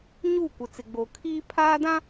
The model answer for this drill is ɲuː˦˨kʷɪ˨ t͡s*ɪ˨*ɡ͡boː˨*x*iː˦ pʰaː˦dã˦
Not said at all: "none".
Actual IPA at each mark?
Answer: ɪ˨, kʰ

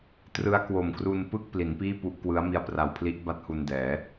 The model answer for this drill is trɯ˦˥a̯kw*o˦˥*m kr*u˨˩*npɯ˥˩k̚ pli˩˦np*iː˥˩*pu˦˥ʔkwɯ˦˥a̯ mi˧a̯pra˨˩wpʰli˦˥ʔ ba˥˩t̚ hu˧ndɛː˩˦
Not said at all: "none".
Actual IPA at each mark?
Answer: o˨˩, u˧, iː˥˩

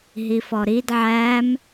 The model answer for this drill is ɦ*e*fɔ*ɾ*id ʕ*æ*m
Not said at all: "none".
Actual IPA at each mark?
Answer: i, ɾ, æ

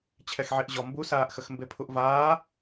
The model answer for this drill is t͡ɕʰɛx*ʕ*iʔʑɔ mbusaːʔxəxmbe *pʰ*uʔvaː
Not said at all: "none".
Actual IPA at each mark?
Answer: ʕ, pʰ

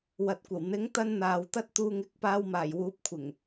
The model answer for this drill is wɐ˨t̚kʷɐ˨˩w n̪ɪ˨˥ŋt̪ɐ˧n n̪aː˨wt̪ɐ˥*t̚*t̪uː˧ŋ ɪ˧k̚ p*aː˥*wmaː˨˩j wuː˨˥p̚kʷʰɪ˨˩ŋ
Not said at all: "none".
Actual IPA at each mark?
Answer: t̚, aː˧

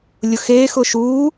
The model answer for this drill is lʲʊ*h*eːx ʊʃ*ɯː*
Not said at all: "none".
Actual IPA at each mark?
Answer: x, uː

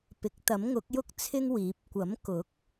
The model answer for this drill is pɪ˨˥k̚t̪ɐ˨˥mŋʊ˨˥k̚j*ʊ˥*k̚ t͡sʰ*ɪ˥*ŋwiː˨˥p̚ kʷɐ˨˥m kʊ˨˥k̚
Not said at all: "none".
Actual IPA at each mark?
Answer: ʊ˥, ɪ˥

